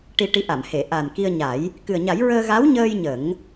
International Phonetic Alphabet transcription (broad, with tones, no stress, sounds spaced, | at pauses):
ʈ i˧ ʈ i˧˥ ʔ a˨˩˨ m h e˨˩˨ ʔ a˨˩ n k i˧ ə̯ ɲ a˨˩˦ j | k ɨ˨˩ ə̯ ɲ a˨˩˦ j ɹ əː˧ ɣ a˧˥ w ɲ əː˧ j ɲ ə˨˩˦ ŋ